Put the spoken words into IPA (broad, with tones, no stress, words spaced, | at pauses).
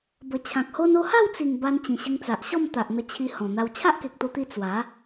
bə˨˩ t͡ɕʰã˨k̚ho˦n o˧ha˥˧wt͡si˨˩ŋ ba˧nt͡ɕĩ˨˩ ɕə˧ŋt͡sa˨ʔɕɔ˥˧m t̪a˨ʔn̪ə˧t͡ɕʰi˧ hɔ̃˨˩n̪a˧w t͡ɕʰa˦ʔke˨k̚t̪o˧t̪i˧ t͡swa˨˦